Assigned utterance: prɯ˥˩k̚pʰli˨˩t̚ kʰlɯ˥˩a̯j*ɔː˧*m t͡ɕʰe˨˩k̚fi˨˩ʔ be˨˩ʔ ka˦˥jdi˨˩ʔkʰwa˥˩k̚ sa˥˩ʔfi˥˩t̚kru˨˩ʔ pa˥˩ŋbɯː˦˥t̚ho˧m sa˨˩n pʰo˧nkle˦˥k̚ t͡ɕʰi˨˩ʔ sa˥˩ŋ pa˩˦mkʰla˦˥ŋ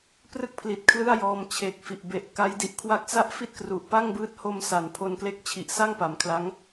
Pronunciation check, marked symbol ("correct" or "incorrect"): correct